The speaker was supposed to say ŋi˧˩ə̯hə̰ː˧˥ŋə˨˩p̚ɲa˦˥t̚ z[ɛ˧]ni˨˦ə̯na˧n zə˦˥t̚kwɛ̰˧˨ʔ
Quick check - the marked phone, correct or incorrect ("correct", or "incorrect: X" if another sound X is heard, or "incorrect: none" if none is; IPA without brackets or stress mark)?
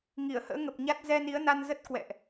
correct